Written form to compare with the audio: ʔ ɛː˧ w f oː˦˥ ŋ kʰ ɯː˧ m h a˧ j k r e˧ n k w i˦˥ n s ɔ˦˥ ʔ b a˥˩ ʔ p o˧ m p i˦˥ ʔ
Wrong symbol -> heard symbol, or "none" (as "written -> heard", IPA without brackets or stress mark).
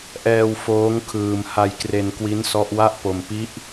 b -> w